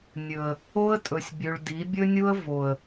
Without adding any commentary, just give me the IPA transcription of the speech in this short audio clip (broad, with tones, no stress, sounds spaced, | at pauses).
nʲ ɵ˨ ə̯ | o˦ ə̯ tʼ ɵ˨ sʲ bʲ ʉ˨ ɭ d i˨˦ bʲ ɵ˦ nʲ u˦ ə̯ v o˨ ə̯